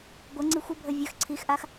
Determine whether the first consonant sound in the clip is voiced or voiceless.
voiced